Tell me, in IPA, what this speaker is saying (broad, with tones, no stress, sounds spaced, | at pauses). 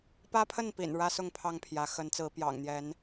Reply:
p ä˦ pʰ ə˥˨ n p ḭ˨˩ n ɻ ä˦ s ʊ˥˨ ŋ pʰ ɑ˥˨ ŋ pʰ j ä˨˦ x ə˨˦ n t͡s ɹ̩˨˦ p j ɑ̰˨˩ ŋ n̪ j ɛ˨˦ n